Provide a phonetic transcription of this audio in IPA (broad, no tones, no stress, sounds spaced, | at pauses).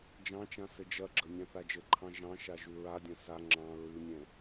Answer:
d͡ʒ ɑ̃ t͡ʃ ã s ɘ d͡ʒ ɐ ɡ͡ǁ ə nʲ ɑ̃ θ a d͡ʒ ɘ ǃʰ ɑ̃ ʒ ɑ̃ ʃ a ʒ ʉ ɹ a dʲ ɐ̃ s a ŋ͡ǁ ɑ̃ ɹ ʉ nʲ ɛ̃